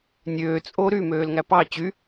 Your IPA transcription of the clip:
nʲ øː t͡sʼ o ɾ y m øː l ŋ æ p ɑ t͡ɕ y

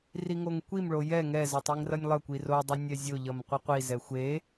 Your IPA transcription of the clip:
r i ŋ o ŋ kʷ i m ɭ o j ɛ ŋ ɛ z ʌ tˤ i ŋ r ʌ nʲ lˠ ʌ kʷ i r o dˤ ʌ nʲ ɛ zʲ o ʎ ʌ m qʷ i qʷ i z ɛ xʷ e

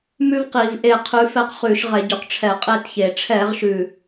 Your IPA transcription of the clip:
m ʉ˥ v q i˧˩˧ v ʔ e˦˨ qʰ ʉ˨˦ f ɛ˦˨ q χ ʉ˧˩˧ ʃ ʁ ɛ˧˩˧ ɟ ʉ˨˩ q ʈ͡ʂʰ ɛ˧˩˧ qʼ e˦˨ t ç e˨˩ ʈ͡ʂʰ ɛ˧˩˧ ʁ ʃ ʉ˨˩

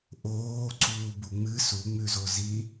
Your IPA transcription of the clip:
ʔ oː ǀ uː b u ŋ͡m ɨ s u ŋ͡m ʉ z o z i

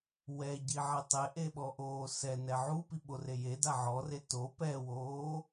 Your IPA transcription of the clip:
w ɛ ɟ i ʕ ɛ tˤ e ʔ e ɓ ɔ ʔ oː s ɛ n ɛ ʕ u p i ɓ o r e j e d a ʕ ɔ r e t o p ɛ w oː

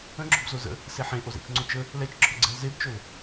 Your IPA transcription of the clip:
ə̃ ɡ͡ǁ o̤ b z o z ə̰ | s e ħ ẽ ʔ o z ɛ̰ t͡ʃ ŋ͡ǀ o t͡ʃ ə | l ɛ t͡ʃ ǁʰ ɵ ɡ͡ǀ ɛ̤ l z e b t͡ʃ ɵ l

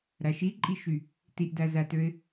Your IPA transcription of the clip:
ɾ æ ʃ i ǃʼ i ʃ y | t i ʔ d æ z æ t ø ɪ̯

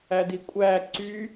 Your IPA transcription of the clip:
æ d i kʷʼ æ ǀ y

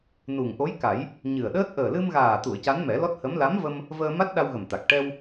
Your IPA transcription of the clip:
n u˨˩ ŋ ʔ o˧˥ j k a˨˩˦ j | ɲ ɨ˨˩ ə̯ ɗ əː˦˥ t̚ ʔ əː˨˩ l ɨ˧ m ɣ aː˨˩ t̪ u˨˩˨ ə̯ c a˧˥ n m ɛ˨˩˦ l ɔ˦˥ t̚ h ə˧˥ m l a˧˥ m v ə˧ m | v əː˧ m a˦˥ t̚ ɗ a˧ w ɣ ə˨˩ m t̪ a˨˩ k̚ ʈ ɛ˧ w

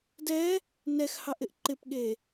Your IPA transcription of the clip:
d ɛ | n ɛ x h ɑ ʔ ɪ ʔ ǃ ɪ p ɠ e

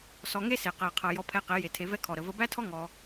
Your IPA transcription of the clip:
s ɔ˧ ŋ e˦ s e˨ q æ˨ qʰ ʌ˨ j ɔ˧ pʰ ɛ˧ q e˨˦ j e˨ tʰ e˧ v ɛ˦ kʰ ɔ˨ ɾ ə˨ v ə˧ b æ˦ tʰ ɔ˦ ŋ ɔ˧

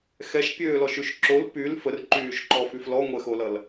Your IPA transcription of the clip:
x ɛ ʃ pʲ øː l ɔ ʃ y ʃ ǁ o l p y l f ə r ǃ yː ʃ ǃ ɔ f y f l ɔ ŋʷ ɛ x o l ʌ l

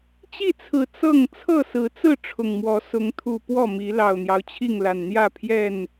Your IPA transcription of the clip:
t͡ɕ i˥˨ t͡sʰ ɹ̩˨˩ t͡s ɤ˥˨ ŋ t͡sʰ ɤ˥˨ s ɹ̩˨˦ t͡s ɹ̩˥˨ ʈ͡ʂʰ ʊ˨˩ ŋ m w ɔ˨˦ s ʊ˨˦ ŋ t̪ʰ u˨˩ p w ɔ˥˨ m i˨˦ l ɑ˨˩ ʊ̯ n̪ j ɑ˦ ʊ̯ t͡ɕʰ i˥˨ ŋ l a˨˩ n n̪ j ä˥˨ pʰ j ɛ˥˨ n

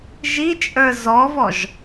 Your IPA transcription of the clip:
ʒ i t͡ʃʼ ə˞ z ɔ v ɔ ʒ

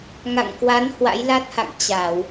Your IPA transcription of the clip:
ŋ a̰˧˨ ŋ k w a˨˦ n h w a̰˧˥ j l a˦˥ t̚ h a̰˧˨ ŋ t͡ɕ a˧˩˨ w

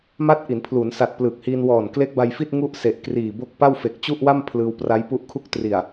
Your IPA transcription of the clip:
m a˦˥ t̚ ʔ i˩˦ n pʰ l u˩˦ n s a˨˩ t̚ p l ɯː˨˩ k̚ h iː˧ n w ɔː˨˩ n k l e˦˥ k̚ b a˧ j f i˥˩ t̚ ŋ u˥˩ ʔ s e˨˩ ʔ k r iː˨˩ b o˥˩ k̚ p a˥˩ w f e˨˩ k̚ t͡ɕ u˥˩ ʔ w a˥˩ m pʰ l ɯː˧ w p r a˦˥ j p u˦˥ ʔ kʰ u˥˩ k̚ t r i˨˩ a̯

